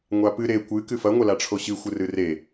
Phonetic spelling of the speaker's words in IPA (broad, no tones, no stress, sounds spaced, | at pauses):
ŋʷ a p ɨ ɾ e kʷ ɨ k ɨ f ɐ ŋʷ ɐ l a ʈ͡ʂʰ o ɕ ɨ xʷ ɨ r ɨ r e